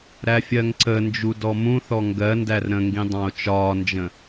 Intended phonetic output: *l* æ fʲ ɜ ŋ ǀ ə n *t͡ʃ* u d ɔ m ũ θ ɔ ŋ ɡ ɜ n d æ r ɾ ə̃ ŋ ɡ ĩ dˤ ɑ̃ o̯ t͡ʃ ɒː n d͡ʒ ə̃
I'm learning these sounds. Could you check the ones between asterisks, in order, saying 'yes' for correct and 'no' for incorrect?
no, no

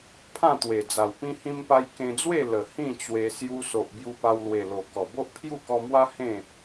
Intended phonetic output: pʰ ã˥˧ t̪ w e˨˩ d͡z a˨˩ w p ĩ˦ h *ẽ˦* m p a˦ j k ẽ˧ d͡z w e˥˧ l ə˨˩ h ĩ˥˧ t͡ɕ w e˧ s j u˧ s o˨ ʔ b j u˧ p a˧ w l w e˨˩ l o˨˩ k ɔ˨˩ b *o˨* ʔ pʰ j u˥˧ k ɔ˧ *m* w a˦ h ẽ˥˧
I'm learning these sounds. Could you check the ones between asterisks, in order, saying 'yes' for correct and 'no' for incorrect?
no, no, yes

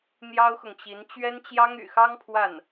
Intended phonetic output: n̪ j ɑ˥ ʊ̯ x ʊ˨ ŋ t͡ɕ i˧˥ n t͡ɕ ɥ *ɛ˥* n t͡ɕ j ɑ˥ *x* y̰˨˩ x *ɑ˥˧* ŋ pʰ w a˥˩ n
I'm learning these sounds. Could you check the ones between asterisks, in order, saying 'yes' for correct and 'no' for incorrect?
yes, no, no

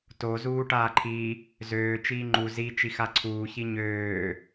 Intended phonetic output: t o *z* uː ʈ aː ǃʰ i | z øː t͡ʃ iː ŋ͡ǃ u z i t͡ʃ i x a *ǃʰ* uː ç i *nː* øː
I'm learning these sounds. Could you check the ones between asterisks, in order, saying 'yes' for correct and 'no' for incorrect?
yes, no, no

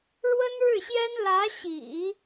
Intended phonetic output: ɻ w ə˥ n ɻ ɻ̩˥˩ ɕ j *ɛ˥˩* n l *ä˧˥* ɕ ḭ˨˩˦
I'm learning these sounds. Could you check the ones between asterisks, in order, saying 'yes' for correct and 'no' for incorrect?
no, yes

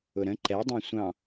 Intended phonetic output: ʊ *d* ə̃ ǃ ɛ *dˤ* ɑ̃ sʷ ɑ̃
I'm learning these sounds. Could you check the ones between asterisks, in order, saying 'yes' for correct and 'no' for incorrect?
no, yes

